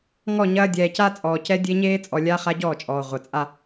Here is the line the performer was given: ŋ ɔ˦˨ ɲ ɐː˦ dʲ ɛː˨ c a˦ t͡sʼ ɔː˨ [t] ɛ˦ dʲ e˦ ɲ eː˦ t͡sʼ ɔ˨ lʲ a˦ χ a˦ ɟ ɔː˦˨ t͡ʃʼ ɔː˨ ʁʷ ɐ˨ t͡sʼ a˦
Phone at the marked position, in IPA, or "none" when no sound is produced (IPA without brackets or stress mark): c